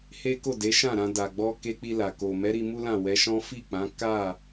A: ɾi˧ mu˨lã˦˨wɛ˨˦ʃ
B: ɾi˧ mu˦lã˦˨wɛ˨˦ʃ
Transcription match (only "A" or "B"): B